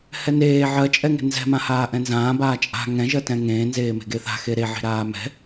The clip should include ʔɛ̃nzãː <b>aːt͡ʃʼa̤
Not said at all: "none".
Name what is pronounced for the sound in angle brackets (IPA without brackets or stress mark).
b